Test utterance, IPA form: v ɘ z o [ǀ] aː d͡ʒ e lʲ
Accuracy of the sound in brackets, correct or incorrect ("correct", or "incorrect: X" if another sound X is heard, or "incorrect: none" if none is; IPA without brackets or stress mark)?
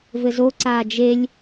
correct